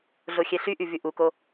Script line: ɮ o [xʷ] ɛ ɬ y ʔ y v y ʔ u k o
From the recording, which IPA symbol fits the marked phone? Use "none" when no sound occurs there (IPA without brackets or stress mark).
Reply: xʲ